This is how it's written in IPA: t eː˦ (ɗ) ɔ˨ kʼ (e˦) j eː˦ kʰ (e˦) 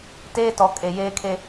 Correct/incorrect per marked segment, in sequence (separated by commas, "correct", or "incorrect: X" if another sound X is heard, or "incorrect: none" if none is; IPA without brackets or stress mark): incorrect: t, incorrect: e˨, correct